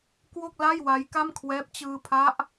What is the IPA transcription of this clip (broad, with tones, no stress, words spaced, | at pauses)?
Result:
kwo˥˩k̚la˥˩jwa˦˥j ka˥˩mkʰwɛː˦˥p̚ t͡ɕɯː˧pʰa˦˥ʔ